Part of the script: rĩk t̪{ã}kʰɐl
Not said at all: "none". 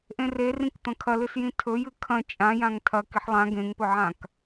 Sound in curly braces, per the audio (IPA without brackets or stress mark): ɐ̃